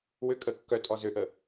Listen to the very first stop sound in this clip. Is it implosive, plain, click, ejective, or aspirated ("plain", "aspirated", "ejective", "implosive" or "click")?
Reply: ejective